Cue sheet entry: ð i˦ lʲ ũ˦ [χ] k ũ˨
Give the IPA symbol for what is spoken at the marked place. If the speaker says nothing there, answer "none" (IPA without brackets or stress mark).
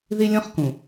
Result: χ